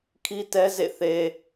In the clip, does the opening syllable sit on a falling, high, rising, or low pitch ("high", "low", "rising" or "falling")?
high